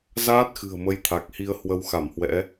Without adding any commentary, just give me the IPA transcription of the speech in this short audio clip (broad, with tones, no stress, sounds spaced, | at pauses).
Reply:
z aː˦˥ t̚ x ɨ̤˨˩ ə̯ m ə˨˦ j t̪ʰ a˨˩ k̚ h i˧ ə̯ h w ə˧ w x a˧˩ m h w ɛ̰˧˥